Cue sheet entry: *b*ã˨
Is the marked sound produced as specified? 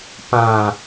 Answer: no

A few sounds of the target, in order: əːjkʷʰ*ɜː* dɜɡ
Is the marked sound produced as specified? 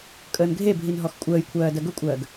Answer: yes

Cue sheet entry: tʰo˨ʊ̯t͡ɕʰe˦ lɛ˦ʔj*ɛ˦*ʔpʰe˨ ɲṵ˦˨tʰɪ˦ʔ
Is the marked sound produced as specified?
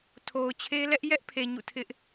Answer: yes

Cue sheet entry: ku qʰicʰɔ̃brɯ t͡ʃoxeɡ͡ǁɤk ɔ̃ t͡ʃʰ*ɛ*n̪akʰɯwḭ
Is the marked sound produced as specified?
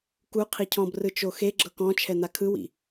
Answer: yes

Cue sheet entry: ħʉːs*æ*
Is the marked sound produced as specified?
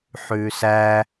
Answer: yes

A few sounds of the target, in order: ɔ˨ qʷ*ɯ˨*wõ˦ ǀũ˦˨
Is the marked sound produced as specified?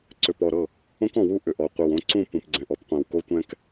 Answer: no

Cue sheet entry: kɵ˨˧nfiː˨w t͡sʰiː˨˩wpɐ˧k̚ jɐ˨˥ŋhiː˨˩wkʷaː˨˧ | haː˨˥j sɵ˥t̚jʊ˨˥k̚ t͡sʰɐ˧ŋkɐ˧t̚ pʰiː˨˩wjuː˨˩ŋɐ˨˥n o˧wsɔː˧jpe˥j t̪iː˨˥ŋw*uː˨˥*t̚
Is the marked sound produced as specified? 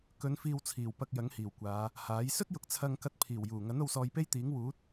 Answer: yes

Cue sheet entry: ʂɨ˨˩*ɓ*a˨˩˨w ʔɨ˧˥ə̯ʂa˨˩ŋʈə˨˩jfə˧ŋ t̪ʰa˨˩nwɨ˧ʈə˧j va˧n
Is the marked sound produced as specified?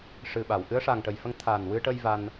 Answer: yes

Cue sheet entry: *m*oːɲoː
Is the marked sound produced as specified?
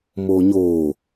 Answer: yes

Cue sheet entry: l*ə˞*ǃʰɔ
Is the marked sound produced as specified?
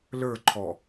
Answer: yes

